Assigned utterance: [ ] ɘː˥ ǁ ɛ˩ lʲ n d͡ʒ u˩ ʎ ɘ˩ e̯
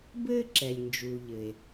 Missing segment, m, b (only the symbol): b